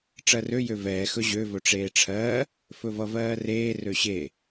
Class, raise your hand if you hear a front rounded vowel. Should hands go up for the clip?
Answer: yes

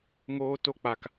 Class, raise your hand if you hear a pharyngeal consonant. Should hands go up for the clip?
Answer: no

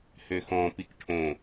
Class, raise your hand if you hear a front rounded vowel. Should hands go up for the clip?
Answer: yes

